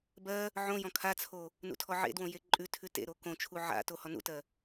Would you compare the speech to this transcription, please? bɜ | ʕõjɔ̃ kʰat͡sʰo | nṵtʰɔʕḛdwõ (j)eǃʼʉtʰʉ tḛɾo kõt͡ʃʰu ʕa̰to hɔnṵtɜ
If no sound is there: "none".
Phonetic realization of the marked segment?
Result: j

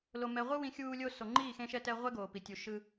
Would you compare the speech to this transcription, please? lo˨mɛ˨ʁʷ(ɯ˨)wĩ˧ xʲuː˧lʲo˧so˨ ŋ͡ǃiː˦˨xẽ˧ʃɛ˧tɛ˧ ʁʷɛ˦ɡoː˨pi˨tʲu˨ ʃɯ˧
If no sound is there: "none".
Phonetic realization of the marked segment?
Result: ɯ˦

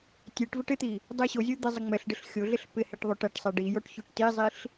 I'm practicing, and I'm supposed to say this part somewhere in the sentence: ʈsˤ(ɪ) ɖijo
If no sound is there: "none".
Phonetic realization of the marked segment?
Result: ɛ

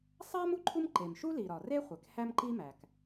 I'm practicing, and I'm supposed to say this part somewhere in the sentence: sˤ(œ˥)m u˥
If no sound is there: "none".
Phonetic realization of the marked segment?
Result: æ˥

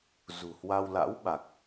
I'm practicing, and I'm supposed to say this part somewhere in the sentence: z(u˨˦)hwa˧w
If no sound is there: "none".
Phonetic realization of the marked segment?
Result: ṳ˨˩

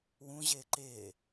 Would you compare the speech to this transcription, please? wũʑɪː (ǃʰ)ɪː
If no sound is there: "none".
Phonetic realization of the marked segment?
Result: ǃ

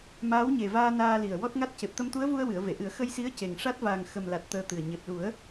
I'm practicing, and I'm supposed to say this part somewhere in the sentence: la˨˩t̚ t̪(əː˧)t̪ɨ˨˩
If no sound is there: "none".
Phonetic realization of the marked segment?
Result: əː˧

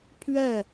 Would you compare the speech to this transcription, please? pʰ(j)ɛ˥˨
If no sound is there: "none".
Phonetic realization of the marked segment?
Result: ɥ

